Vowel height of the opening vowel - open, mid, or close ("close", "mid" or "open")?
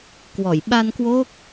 mid